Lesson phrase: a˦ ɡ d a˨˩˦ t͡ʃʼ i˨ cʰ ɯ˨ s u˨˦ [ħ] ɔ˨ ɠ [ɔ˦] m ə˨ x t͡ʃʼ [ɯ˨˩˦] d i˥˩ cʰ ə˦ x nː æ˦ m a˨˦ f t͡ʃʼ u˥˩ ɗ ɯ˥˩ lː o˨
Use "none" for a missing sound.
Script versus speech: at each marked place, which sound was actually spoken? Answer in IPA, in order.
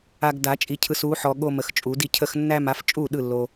ħ, o˦, u˨˩˦

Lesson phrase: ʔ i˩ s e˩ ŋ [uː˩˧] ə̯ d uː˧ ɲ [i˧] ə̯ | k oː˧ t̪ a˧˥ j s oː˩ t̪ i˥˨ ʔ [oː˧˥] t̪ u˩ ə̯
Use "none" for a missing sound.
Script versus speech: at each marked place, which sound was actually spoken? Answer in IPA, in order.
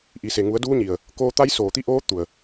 u˩˧, i˩, oː˧˥

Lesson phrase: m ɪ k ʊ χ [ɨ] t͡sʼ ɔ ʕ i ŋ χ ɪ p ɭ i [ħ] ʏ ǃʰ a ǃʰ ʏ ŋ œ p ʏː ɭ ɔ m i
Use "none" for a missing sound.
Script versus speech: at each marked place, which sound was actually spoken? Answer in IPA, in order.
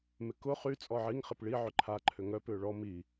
y, ʕ

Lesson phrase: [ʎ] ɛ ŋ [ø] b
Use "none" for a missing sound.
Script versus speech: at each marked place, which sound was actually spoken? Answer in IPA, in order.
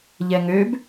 ʎ, ø

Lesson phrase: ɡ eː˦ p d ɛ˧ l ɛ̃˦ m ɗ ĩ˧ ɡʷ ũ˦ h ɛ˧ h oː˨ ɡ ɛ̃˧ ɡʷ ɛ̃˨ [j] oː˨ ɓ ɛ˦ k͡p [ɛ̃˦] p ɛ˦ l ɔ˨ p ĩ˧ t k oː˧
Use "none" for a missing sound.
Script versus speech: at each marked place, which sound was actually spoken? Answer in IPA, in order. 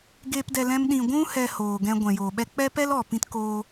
j, ɛ˦

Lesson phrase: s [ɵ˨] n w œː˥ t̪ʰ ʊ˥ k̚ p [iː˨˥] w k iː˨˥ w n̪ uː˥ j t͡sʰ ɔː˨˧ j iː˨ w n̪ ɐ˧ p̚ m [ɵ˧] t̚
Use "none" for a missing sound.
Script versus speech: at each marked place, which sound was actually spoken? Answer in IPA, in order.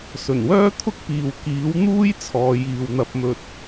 ɵ˨˩, iː˨, ɵ˧

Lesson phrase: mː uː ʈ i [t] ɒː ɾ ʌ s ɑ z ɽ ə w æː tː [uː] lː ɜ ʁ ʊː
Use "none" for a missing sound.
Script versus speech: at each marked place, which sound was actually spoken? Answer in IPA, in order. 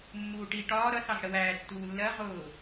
ʈ, uː

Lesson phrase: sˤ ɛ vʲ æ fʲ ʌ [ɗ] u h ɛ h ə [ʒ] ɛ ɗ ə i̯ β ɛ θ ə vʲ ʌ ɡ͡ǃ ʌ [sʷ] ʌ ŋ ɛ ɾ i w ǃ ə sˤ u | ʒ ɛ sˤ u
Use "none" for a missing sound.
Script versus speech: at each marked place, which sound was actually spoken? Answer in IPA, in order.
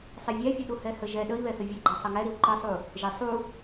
ɗ, ʒ, sˤ

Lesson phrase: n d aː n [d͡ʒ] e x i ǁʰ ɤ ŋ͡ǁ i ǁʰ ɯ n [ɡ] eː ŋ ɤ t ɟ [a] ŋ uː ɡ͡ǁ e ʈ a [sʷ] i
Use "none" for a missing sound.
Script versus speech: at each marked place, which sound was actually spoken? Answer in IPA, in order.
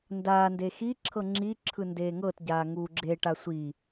d, d, aː, sʷ

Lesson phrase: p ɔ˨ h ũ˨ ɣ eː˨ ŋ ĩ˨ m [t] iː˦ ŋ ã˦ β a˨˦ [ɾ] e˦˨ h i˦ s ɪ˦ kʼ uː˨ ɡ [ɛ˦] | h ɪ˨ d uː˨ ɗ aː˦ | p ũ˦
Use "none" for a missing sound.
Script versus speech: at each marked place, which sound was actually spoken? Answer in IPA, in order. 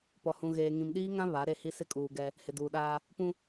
ɗ, ɾ, ɛ˦

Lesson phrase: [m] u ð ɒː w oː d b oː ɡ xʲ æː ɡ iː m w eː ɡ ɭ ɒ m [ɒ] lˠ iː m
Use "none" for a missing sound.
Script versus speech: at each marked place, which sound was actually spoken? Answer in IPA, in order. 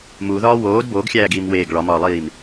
m, ɒː

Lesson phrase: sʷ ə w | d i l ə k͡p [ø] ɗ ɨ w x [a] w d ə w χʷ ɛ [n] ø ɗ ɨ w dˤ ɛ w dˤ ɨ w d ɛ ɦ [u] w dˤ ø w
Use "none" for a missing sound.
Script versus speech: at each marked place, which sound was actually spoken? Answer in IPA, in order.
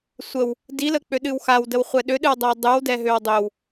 ø, a, ɗ, ø

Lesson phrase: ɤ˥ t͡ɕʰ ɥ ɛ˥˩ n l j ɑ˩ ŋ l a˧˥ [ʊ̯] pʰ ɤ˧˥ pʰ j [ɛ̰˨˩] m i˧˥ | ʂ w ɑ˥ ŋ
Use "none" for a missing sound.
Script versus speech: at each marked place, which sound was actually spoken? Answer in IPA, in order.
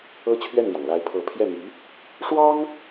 ɪ̯, ɛ˥˩

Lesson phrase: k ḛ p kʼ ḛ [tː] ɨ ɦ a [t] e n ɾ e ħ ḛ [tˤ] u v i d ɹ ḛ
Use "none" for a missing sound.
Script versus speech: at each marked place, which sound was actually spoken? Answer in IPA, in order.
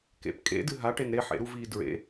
d, ʈ, ɾ

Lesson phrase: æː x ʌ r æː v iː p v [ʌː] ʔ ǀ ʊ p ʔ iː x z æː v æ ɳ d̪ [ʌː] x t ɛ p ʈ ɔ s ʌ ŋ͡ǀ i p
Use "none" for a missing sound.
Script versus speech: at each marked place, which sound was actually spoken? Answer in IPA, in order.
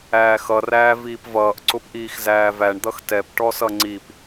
ʌː, ʌ

